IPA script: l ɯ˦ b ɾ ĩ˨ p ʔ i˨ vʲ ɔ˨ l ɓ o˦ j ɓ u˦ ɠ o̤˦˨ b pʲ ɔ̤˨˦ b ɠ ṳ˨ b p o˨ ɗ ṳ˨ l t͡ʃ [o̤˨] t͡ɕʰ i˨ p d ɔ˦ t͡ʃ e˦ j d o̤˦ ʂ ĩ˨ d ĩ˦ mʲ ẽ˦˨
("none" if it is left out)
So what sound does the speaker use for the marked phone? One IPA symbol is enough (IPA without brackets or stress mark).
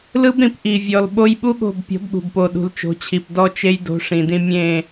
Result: o̤˨˦